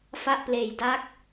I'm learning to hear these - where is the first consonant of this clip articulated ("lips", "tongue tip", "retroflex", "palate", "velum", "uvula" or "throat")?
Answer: lips